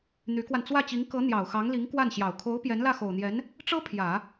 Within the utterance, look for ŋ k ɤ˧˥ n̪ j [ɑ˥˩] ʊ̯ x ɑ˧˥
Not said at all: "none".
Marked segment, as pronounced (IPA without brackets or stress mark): ɑ˨˩